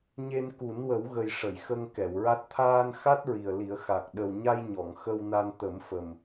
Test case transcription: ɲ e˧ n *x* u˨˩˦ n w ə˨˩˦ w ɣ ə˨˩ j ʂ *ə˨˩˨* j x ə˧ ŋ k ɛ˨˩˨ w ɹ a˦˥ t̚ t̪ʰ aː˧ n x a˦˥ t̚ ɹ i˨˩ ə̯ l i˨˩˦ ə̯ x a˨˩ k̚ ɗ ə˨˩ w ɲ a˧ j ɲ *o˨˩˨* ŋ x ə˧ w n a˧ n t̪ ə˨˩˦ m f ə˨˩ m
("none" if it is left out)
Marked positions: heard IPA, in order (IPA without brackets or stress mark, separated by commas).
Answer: k, ə˨˩˨, ɔ˨˩˨